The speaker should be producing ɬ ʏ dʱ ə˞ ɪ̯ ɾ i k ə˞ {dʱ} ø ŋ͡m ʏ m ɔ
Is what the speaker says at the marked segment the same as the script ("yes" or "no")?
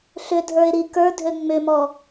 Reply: yes